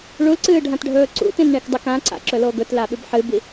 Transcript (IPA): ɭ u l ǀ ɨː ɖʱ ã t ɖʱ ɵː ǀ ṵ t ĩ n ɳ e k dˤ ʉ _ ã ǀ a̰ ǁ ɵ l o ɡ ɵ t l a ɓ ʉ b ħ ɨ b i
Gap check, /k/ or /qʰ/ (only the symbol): k